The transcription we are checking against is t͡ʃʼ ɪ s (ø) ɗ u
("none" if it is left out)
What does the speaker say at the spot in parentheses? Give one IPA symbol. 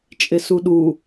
u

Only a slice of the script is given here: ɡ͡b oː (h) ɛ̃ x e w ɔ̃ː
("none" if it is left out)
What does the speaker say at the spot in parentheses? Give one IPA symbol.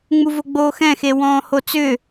x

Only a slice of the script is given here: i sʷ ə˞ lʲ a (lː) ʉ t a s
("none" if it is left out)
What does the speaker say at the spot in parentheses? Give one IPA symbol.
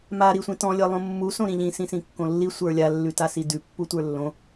lː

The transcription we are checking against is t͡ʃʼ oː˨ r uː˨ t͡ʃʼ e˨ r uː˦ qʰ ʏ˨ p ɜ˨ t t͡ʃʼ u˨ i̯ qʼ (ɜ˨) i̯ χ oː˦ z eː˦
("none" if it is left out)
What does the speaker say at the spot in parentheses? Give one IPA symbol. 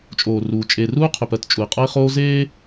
ɜ˦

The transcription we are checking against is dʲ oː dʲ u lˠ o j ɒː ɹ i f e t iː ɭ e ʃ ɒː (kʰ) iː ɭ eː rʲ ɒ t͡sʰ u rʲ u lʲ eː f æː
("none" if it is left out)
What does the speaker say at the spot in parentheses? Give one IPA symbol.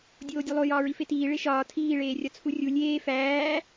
tʰ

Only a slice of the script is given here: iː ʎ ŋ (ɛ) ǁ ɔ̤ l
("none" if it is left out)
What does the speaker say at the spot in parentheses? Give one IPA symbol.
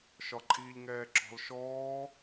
ɛː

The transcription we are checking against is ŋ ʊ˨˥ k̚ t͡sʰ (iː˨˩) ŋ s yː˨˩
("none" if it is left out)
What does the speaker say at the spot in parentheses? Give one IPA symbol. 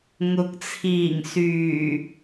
iː˨˩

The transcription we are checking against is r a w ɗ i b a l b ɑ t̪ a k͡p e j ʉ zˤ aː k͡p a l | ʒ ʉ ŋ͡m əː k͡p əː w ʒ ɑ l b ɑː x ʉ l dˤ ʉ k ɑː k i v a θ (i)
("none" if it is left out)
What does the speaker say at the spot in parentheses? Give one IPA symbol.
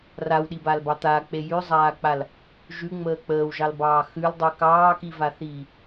iː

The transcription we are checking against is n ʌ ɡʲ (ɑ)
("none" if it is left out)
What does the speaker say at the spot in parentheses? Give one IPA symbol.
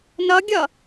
ʌ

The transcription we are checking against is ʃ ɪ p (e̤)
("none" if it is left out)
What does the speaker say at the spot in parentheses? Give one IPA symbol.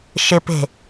e̤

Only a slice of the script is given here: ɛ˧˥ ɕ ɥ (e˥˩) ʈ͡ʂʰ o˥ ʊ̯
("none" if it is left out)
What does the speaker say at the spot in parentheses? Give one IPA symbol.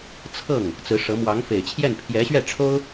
ɛ˥˩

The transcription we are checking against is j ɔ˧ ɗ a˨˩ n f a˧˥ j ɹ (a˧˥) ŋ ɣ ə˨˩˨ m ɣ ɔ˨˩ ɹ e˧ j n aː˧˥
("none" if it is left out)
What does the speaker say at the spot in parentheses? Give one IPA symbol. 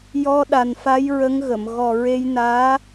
ə˧˥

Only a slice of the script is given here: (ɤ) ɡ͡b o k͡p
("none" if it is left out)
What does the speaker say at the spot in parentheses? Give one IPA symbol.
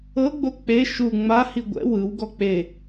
ɤ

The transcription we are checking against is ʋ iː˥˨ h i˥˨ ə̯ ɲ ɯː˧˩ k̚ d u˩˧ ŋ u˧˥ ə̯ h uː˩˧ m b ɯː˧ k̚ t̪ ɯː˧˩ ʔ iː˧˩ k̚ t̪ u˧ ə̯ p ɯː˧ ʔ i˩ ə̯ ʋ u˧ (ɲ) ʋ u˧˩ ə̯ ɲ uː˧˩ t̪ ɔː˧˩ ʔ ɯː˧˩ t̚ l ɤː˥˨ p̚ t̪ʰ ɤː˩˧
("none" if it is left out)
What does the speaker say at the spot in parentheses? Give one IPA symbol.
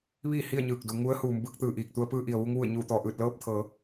ŋ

